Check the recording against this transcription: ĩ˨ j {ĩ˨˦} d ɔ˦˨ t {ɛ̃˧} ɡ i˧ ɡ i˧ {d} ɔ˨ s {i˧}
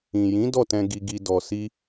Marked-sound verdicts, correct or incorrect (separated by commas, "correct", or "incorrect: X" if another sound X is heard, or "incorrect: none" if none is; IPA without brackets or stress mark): correct, correct, correct, correct